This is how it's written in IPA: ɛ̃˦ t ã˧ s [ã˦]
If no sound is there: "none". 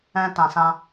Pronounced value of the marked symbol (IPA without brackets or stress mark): ã˦